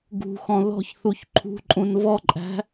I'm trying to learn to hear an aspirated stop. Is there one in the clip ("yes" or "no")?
yes